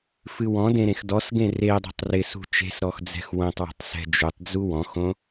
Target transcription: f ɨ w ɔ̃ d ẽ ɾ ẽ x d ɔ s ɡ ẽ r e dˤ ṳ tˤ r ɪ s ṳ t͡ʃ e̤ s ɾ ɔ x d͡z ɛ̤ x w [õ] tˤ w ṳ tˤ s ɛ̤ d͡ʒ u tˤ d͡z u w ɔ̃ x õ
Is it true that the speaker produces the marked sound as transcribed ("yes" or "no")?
yes